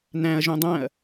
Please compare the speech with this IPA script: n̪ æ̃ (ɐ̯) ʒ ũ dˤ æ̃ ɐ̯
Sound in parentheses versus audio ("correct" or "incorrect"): correct